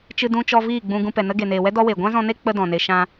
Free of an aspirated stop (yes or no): yes